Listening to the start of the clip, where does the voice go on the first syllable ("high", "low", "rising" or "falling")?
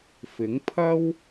rising